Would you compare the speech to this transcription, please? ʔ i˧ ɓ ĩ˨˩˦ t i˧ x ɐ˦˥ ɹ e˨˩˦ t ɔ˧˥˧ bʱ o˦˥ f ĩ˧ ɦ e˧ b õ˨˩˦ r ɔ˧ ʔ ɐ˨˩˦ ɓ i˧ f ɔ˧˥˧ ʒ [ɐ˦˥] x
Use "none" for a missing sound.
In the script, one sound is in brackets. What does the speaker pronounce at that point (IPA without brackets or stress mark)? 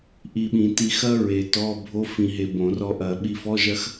ɐ˦˥